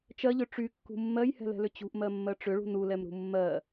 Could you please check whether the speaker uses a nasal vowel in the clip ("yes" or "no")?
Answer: no